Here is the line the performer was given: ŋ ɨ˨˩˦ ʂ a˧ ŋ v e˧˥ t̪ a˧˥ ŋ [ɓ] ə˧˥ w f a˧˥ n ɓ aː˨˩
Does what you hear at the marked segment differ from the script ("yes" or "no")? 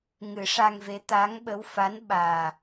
no